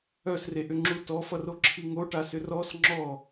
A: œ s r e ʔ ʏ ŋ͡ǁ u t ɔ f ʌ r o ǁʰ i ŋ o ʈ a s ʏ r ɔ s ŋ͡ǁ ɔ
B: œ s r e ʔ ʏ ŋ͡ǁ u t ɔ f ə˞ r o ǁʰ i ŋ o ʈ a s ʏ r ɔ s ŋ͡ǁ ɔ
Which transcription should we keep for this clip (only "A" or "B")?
A